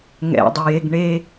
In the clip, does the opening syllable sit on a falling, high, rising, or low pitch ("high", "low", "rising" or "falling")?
low